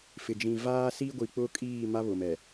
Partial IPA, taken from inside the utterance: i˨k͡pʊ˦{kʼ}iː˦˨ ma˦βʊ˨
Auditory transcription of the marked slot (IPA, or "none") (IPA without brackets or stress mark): kʼ